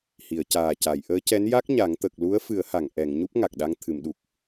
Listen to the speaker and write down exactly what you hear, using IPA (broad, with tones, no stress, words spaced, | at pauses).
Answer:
hi˨˩˨ə̯caː˨˩ca˨˩˨j ʔəː˧˥cɛ˧˥n ja˦˥k̚ ɲa˨˩˦ŋ t̪ə˨˩k̚ lu˧˥ə̯fɨ˨˩˦ə̯ha˨˩˨ŋ ʔɛ˨˩˨ŋ ɲu˦˥p̚ ŋa˨˩k̚ɗa˧ŋ t̪ʰɨ˨˩˨mɗu˨˩k̚